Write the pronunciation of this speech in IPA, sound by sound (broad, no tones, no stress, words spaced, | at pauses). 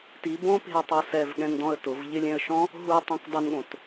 ti bõpe̤ə̯tˤo sɛvɠɛ̃ndɔ̃ə̯ tʊv ʎɪlʲɛ̃ə̯ʃɔ̃ | ɦutˤẽk dˤɪnɠõt